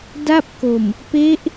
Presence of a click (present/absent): absent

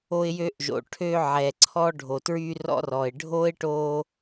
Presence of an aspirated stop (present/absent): present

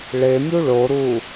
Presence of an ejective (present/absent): absent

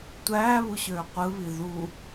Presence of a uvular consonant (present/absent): present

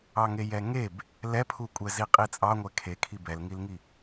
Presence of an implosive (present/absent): absent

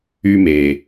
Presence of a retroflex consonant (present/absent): absent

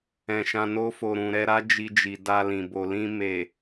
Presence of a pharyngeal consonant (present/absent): absent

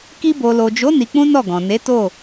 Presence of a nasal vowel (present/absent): present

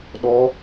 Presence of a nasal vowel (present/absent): absent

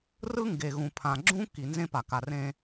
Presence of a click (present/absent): present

